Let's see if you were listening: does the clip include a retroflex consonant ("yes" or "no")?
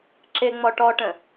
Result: yes